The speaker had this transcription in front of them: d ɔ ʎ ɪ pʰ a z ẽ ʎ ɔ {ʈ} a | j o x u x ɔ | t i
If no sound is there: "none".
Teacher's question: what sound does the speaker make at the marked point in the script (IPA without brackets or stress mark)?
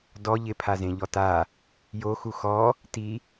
t